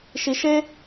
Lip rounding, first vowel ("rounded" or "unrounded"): unrounded